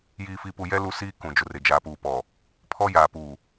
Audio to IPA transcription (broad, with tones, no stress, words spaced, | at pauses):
jiː˨fi˨ pu˨ jɛ˦ lu˦siː˦ kũ˨d͡ʒʊ˨rɪ˨ d͡ʒaː˨puː˨pɔ˨ | pʰɔ˦ jaː˨puː˨